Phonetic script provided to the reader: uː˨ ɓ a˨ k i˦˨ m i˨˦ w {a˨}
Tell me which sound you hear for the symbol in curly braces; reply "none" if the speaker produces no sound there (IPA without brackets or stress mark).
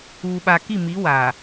aː˨